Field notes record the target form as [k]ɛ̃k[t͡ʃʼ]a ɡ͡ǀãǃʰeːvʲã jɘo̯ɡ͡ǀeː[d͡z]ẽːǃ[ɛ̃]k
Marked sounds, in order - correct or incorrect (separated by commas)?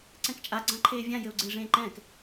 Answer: incorrect, correct, incorrect, incorrect